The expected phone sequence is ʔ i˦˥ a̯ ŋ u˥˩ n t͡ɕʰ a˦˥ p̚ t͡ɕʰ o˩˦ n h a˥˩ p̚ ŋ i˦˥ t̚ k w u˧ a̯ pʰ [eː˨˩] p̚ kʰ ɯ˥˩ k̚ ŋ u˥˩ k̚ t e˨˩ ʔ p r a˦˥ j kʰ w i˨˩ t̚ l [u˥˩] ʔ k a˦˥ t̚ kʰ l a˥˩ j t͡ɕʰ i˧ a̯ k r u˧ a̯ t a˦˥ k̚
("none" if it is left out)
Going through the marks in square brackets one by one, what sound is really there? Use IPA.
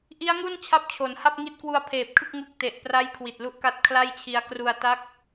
eː˨˩, u˦˥

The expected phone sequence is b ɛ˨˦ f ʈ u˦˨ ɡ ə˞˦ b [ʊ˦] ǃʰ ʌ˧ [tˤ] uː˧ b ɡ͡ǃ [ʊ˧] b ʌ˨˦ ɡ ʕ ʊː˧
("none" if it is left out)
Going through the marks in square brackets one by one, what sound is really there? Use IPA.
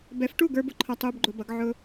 ʊ˦, tˤ, ʊ˧

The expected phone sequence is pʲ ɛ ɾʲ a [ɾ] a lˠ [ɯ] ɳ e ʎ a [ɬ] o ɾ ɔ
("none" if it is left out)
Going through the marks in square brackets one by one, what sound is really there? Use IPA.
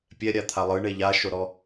t̪ʰ, ɯ, ʃ

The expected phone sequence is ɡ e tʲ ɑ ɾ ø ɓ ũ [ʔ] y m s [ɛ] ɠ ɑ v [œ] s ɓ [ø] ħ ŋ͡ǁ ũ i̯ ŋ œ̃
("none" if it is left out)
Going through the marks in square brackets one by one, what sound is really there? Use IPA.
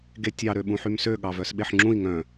ħ, ø, œ, e

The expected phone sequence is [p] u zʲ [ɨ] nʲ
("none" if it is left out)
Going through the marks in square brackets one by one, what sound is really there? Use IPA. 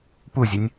p, ɨ

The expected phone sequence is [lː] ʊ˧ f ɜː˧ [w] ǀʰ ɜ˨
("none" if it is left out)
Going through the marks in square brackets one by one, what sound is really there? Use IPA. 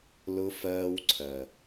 l, w

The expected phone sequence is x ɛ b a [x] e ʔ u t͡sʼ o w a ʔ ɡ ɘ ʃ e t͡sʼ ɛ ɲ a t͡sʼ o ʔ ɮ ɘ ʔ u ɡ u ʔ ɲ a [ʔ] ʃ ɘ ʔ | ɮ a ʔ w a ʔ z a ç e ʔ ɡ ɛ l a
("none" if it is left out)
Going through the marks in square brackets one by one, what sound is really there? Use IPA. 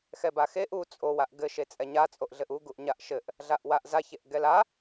x, ʔ

